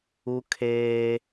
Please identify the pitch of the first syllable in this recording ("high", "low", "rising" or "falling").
high